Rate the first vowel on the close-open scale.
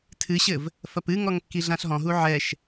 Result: close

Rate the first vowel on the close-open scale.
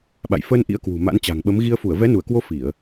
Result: open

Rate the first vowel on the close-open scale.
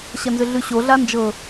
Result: open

